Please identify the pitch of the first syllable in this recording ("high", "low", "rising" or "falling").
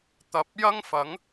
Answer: low